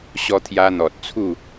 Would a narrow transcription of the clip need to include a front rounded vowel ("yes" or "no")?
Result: no